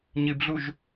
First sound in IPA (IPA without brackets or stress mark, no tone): ɲ